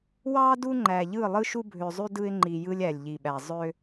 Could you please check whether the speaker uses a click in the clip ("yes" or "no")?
yes